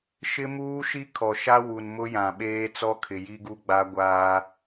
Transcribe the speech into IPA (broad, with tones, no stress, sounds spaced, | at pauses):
ʃ ɪ˦ m uː˦ ʃ i˦ kʰ ɔ˨ ʃ a˦ w u˨ n m ʊ˦ j ã˨ ɓ eː˦ t͡s ɔ˦ kʰ ɪ˨ j i˦ ɡ u˦ ɡ͡b a˦ ɡʷ aː˦